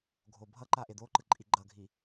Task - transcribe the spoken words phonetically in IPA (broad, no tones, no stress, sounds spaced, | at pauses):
ɡʱ o bʱ ʌ ǃ a ʔ e d̪ o ǃ ɯ ǃʼ i ɡ͡ǃ ʌ ɡʱ i